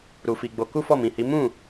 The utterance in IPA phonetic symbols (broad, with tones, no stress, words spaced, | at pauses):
ɾu˧fi˧ɡ͡bo˧ ku˦fɔ˦˨mĩ˨hi˨˦ mũ˦˨